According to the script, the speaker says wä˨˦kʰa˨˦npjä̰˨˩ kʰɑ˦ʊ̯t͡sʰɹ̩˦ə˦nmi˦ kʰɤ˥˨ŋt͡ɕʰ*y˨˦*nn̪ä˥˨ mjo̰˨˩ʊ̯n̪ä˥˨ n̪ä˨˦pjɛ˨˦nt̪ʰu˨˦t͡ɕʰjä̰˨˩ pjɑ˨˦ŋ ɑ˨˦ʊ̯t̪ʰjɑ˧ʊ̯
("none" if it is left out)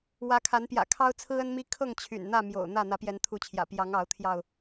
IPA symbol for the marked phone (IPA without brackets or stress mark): y̰˨˩